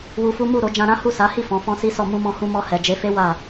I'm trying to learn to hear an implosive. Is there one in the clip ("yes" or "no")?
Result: no